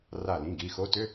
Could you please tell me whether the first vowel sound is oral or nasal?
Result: oral